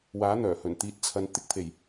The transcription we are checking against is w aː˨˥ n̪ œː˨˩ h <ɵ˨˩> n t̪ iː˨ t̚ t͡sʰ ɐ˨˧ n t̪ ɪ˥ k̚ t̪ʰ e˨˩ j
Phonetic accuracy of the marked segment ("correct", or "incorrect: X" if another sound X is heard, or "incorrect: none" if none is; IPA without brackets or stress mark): correct